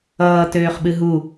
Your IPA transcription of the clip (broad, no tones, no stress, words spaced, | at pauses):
ʌː tøːχɓɨɦu